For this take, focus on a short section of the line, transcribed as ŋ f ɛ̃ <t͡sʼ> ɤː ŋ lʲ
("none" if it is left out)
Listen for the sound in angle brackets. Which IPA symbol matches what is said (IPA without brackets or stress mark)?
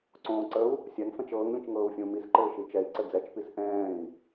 t͡ʃ